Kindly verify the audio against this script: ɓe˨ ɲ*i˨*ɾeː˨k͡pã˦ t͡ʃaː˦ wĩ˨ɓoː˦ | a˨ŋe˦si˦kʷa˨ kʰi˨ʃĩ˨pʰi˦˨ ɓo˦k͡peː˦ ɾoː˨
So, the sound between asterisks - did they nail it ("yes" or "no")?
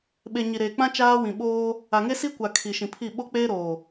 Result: yes